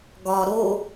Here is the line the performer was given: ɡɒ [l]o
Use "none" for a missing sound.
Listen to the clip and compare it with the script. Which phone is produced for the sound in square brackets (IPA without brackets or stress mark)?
ɾ